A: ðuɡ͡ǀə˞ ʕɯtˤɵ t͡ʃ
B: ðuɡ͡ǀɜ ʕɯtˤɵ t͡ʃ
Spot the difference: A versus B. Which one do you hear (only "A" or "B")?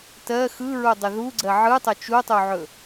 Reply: B